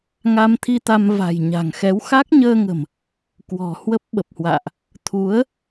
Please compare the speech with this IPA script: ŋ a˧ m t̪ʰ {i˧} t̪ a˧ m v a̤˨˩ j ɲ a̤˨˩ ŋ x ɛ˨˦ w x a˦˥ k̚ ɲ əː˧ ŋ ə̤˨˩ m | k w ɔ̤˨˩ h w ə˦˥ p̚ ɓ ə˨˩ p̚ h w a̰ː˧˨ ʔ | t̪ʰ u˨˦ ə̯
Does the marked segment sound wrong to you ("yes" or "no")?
no